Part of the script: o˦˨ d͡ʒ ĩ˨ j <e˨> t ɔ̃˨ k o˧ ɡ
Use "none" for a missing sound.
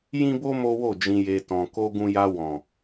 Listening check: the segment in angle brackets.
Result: e˨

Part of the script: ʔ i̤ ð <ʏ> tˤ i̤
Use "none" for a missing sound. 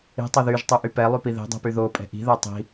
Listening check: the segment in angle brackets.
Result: ɛ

